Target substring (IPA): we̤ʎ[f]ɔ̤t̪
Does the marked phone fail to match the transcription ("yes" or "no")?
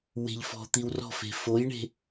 no